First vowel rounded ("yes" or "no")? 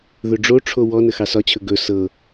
yes